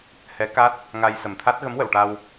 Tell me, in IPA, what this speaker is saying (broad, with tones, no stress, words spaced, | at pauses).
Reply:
hɛ˧˥ka˦˥t̚ | ŋa˧j sə˨˩mt̪ʰa˦˥t̚ ɣə˧˥mwə˨˩˨wʈa˧w